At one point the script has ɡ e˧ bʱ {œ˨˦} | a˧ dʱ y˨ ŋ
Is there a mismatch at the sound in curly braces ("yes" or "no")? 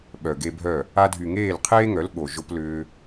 yes